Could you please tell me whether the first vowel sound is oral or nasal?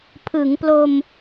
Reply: oral